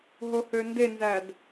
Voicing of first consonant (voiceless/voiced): voiced